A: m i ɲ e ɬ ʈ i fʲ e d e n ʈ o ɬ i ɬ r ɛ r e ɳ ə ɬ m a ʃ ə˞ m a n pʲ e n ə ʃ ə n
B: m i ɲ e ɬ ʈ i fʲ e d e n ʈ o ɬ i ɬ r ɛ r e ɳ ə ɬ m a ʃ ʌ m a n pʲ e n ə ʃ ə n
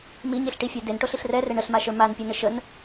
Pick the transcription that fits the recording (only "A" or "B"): A